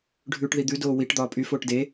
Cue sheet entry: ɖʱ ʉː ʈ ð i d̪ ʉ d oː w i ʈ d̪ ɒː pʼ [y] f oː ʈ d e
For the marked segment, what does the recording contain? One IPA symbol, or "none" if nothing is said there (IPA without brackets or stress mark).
y